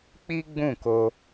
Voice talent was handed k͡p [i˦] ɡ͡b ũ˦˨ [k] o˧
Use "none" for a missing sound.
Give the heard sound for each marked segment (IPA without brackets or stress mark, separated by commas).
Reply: i˦, k